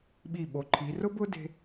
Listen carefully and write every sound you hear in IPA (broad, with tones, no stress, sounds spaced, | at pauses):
ɓ i˧˩ ɓ o˩˧ ǃʰ i˩˧ r ʊ˥ b ʊ˥ d e̤˥